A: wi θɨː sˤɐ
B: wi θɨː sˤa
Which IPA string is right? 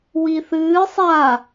B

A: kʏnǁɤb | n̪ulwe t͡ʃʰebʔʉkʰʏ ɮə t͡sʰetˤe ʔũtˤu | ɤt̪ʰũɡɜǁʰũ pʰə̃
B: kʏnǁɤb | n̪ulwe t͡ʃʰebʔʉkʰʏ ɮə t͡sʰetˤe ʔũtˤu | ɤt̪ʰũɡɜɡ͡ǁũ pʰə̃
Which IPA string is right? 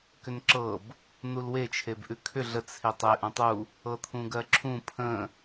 A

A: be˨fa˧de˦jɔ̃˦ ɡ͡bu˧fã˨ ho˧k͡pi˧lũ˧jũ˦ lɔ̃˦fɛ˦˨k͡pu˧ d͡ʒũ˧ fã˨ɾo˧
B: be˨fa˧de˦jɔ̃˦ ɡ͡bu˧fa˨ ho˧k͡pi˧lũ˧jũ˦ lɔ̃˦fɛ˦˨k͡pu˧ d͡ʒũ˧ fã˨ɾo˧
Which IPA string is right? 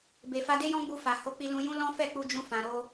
B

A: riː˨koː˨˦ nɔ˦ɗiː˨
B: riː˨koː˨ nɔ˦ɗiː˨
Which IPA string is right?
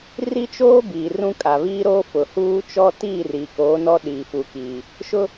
A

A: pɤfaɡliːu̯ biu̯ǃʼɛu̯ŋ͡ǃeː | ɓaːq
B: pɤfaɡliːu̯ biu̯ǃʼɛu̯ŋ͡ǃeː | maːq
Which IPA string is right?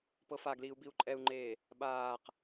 A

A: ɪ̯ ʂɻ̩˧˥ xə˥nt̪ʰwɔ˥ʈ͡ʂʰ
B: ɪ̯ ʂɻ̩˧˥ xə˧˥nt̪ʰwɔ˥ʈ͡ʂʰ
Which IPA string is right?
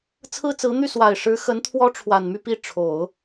B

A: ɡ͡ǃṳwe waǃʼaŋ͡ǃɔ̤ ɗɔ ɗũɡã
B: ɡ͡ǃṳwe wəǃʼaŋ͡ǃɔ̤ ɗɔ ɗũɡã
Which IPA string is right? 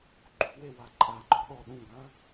A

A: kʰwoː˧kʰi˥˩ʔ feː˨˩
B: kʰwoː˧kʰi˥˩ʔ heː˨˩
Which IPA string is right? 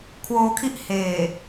B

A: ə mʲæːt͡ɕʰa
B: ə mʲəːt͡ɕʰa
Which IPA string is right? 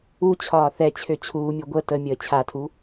B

